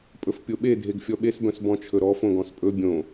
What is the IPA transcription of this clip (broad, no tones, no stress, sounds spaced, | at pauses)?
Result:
pʼ ɵ f pʲ o ɓ e dʱ e ɡ fʲ ɔ ɓ e s b œ̃ s b ɔ̃ t͡ʃʰ ɵ ɾ ɔ f õ ɡ ɔ̃ s pʼ ɵ bʲ õ